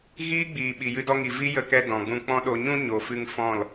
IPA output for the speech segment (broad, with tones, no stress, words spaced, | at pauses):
ɣiː˦ɡ͡biː˨ɓi˨ jɨ˧dɔ˧ŋi˨ vi˦jə˧kɛ˧ dɔ̃˨ɡ͡bũ˧k͡pɔ̃˦ ɗo˨ɲũ˧ ɲo˨fɨ˧ŋ fɔ̃˦˨l